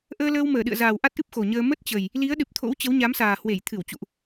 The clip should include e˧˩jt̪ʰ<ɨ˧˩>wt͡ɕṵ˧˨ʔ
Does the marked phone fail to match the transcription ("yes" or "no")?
no